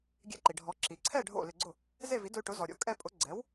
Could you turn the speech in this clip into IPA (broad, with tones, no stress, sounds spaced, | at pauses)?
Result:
ɡʲ ɛ̰˧ ǃ i˩ ɖʱ ɔ˩˥ ǁ i˩ ǀʰ ɛ˥˩ ɖʱ o̰˥˩ l ɪ˧ ɡ͡ǀ ʊ˥˩ | z e˥˩ v i˩˥ d ʊ˧ y̯ ʈ ʊ˩˥ z ɔ˩ ɾʲ o̰˩˥ kʼ ɛ˧ pʼ ʊ˩˥ ɡ͡ǀ ɛ˩˥ w